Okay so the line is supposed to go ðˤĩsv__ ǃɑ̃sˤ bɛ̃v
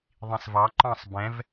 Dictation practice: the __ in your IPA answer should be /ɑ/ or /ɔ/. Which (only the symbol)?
ɑ